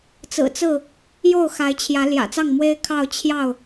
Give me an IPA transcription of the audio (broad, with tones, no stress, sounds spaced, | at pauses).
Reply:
t͡s ɹ̩˨˩ t͡s ɹ̩˥˨ | j o˥˨ ʊ̯ x a˨˦ ɪ̯ t͡ɕʰ j ä˨˦ l j ä̰˨˩ t͡s ɑ˥˨ ŋ m w e˦ ɪ̯ kʰ ɑ˥˨ ʊ̯ t͡ɕʰ j ɑ˥˨ ʊ̯